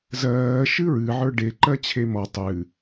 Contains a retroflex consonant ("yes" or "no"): yes